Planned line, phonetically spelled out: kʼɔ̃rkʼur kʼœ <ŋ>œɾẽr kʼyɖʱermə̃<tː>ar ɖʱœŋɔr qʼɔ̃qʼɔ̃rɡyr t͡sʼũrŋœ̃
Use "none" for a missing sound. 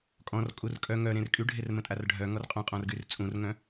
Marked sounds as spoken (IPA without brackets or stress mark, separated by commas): ŋ, tʼ